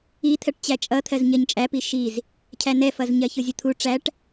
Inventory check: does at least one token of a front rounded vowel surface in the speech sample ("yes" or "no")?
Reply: no